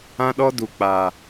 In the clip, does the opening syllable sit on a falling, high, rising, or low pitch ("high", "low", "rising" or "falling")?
high